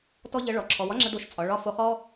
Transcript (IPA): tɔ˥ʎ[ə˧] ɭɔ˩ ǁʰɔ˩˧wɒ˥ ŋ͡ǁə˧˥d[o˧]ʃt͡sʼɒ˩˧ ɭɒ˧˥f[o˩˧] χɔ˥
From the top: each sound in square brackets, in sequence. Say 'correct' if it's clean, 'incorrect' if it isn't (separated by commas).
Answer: incorrect, correct, incorrect